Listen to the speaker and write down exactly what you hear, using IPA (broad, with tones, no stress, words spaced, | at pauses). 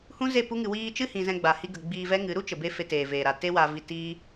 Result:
hũ˦ze˦˨pu˦ŋɨ˧ wiː˧ t͡ʃɨ˦hĩ˨ zɛ̃˧ɡ͡ba˨ hi˧ɡə˨ ɡ͡biː˧vɛ˦ŋɨ˨˦ ɾu˦t͡ʃə˨be˧ fe˧teː˨ veː˨ɾa˨ te˦wa˧vi˧tiː˦